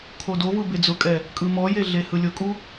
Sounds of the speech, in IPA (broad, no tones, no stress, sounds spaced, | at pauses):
kʰ o d o v ɯ b e d͡z ʊ kʼ ɛ | kʼ ɯ m ɔ j e ɮ e h ɯ lʲ ʊ kʼ u